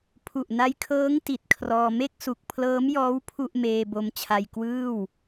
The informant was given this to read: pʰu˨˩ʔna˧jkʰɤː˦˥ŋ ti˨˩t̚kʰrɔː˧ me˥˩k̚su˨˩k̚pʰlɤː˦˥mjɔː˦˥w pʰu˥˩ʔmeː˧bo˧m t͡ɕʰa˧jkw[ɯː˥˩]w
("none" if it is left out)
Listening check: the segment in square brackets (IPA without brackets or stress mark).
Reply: ɯː˥˩